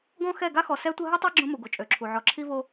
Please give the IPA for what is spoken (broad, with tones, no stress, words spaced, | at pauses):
ɡɔ̃˦xɛ˦˨ ɡa˦xɔ˨sɛ˦tʷə˦ ɦy˦tˤa˦ ɡ͡ǁõ˦mu˨ɡo˨ t͡ʃʼø˨ǁʰu˨ ʕɔ˨ǁʰi˦vo˦